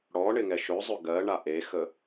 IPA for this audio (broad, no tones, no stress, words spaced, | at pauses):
ɽɔɳɪŋɛ ʃɵzˤɵ ɡɜɳa ʔexə